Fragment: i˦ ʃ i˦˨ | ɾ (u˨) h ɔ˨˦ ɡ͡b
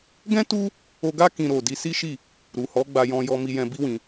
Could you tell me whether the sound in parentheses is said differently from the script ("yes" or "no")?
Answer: no